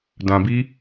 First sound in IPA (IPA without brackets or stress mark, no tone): d